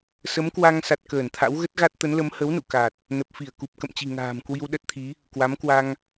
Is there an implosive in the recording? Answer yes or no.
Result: yes